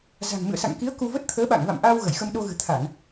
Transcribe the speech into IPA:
za̤˨˩ŋmɨ̰˧˨ə̯sa̰˧˨ŋki˨˦ə̯ ku˧ və˦˥t̚t̪ʰəː˨˦ɓa̰˧˨ŋva̰˧˨m ʔa˧w ɣə˧˩jxə˧mɗo˧ɣɨ̤˨˩ t̪ʰa˧˩˨n

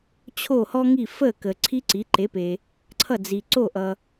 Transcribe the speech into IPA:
t͡ɕʰo˥˩hɔ˥ŋi˥˩ fə˥˩ kə˩ ǀʰi˥ǀi˩˥ ǃe˩˥pe˩ | ǀʰʌ˥˩d͡zi˩ ǀo˥˩ʔʌ˩

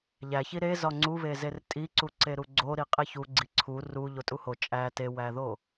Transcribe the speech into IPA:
ʎæçi ɾe zɒŋ͡ǀuβe zertʼiǀu ǀeɾuɡ͡ǀo ɾiqʼeçu ɡ͡ǀiǀʰu ru ʎotʼuho t͡ʃʼæ tewæðo

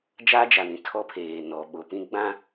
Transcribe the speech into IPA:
d͡ʒa˦d͡ʒa˨nĩ˨ tʰɔ˦pʰeː˨nɔ˨ ɓo˨pĩ˦ ɡ͡bã˦

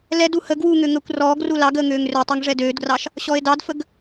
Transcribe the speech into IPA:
lɛdu hə ɡwuŋø ŋəːkʷrɔːɡru lɑɡəː ŋøːŋrøtˤɛŋ ʐɛdøːdɡrɑʃ | ɕɔe̯dɑdfəɡ

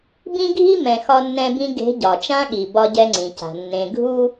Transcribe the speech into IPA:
bĩ˦ɡʱi˦mɛ̃˨ xɒ˦nːɛ̃˦bĩ˦ ɡe̤˨˦ ɟɒ˨t͡ʃã˦ɠi˨ bɒ˦ɟɛ˦ŋ͡ǀĩ˨ca̤˨ nːẽ˨ɡʱu˦

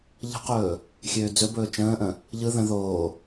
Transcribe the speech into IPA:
ʎə̤qɵː | xʲøːd͡zɵbɵː t͡ʃə̃ːʔə̃ | ʎɯ ðə̃ ðoː

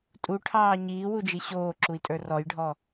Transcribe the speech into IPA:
tʼuʈʰɑː ɲiːwud͡ʒi ɕoːǁui̯tʼə˞ rɔjɖʱɔ

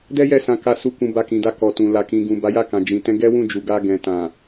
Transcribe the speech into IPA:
dɛ˦ jɛ˦˨sã˧ ka˧su˧ kũ˧ba˧kĩ˨da˧ kɔ˨ tũ˨ la˨kĩ˨ɡũ˨ ba˨˦ja˦˨kã˨ d͡ʒĩ˨tɛ̃˧ ɡɛ˦wũ˦˨d͡ʒu˨ ɡa˧ɡɛ̃˨ tã˨

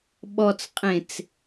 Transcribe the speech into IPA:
ɓɔt͡sqʼẽt͡s

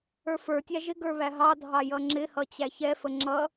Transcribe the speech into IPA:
ə˞fə˞tʲæ ʒɪ ɡə˞βæɦɑdʱɑ jʌŋ͡ǁɪhʌ t͡ɕæçɛfə ŋ͡ǁʌ

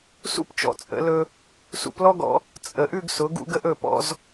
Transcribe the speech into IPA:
sṵ˥pt͡ʃɔ̰˧t͡sʼə̰˩˧lɵ˧ | sṵ˧plɔ˥ɡɔ̰˧ | t͡sʼə˩˧ʔʉ˥˧ɡ sʊ˩˧ɡṵ˧ɡə˧ʔ ɵ˧˩pɔ̰˧z

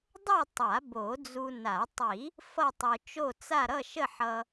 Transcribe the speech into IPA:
dˤo˥˧ tˤa˨˩˦bo˨˩˦d͡zu˧na˨˩˦ tˤi˨˩˦ | fʌ˥˧tˤo˧t͡ʃo˥˧t͡sa˥˧ ɾʌ˥˧ʃə˥˧ħʌ˧

